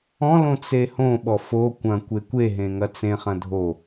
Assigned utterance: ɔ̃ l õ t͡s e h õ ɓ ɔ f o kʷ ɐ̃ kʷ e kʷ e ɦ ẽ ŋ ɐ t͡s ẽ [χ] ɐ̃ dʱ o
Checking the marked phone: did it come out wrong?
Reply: no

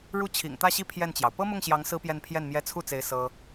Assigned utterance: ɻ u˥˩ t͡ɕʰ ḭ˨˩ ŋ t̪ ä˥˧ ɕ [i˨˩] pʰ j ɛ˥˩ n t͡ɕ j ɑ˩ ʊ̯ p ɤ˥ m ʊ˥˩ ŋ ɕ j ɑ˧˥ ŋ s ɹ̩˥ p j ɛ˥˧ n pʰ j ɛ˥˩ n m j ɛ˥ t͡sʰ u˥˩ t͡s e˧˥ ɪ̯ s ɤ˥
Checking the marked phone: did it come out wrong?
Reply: yes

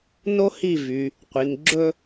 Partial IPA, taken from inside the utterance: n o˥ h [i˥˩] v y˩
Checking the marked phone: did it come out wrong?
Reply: no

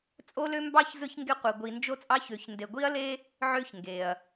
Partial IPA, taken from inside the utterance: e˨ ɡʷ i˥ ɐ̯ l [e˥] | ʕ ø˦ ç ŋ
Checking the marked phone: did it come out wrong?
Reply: no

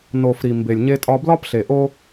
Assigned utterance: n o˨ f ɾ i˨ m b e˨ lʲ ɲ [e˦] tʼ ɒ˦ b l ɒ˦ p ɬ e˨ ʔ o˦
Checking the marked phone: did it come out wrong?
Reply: no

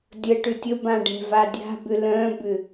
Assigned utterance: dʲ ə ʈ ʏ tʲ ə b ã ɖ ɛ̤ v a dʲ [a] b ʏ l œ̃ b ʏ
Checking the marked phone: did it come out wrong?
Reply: yes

